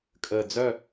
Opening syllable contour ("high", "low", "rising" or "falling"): low